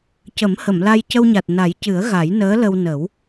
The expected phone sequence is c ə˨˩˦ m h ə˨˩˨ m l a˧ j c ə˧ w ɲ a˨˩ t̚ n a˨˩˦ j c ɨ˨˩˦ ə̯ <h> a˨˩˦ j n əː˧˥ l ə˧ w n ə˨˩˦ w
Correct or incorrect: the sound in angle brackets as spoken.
incorrect: ɣ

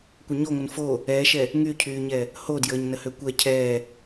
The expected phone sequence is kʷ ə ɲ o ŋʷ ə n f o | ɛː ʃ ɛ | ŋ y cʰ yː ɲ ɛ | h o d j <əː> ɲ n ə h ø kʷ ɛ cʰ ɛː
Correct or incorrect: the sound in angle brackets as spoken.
correct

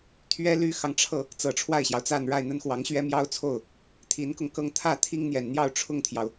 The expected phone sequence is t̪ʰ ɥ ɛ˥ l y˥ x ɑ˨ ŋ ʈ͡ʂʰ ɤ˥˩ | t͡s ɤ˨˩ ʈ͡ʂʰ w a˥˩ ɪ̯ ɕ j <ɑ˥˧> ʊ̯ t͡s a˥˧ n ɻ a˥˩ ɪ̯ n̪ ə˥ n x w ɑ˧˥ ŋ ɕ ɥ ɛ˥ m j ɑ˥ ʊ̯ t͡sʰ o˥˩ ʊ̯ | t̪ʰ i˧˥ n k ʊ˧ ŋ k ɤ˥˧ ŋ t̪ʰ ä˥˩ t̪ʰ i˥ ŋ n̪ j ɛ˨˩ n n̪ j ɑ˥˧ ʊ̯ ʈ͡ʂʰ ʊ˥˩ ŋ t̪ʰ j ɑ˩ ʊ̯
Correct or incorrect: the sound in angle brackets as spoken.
incorrect: ɑ˩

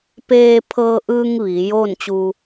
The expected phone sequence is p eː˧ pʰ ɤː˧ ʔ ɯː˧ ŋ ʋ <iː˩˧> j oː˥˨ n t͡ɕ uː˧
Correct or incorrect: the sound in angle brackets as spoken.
correct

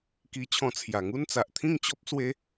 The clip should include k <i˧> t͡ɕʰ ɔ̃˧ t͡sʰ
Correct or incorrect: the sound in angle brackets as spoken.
correct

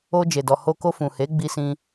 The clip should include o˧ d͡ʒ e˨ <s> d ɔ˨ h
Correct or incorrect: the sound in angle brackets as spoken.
incorrect: none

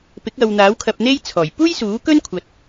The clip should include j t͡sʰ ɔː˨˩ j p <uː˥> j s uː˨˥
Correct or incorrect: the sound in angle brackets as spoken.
correct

